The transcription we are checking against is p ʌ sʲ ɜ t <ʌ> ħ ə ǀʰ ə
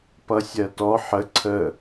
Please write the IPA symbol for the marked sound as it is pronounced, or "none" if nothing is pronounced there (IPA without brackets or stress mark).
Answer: ɔ